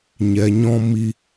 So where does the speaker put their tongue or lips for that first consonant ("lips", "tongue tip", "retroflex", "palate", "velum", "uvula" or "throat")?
palate